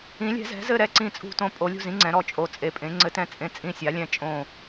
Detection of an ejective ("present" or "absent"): present